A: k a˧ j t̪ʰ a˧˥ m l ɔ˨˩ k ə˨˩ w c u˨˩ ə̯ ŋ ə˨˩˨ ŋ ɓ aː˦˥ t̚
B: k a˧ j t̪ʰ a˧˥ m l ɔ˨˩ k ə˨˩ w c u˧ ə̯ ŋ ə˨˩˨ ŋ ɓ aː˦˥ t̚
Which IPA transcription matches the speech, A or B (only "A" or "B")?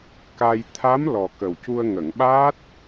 B